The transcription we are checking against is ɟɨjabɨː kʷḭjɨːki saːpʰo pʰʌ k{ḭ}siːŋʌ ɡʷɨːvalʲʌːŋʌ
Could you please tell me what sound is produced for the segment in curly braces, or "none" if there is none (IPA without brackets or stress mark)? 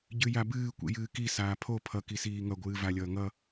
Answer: i